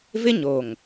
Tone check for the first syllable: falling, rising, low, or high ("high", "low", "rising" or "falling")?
high